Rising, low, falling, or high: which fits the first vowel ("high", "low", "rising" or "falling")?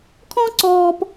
high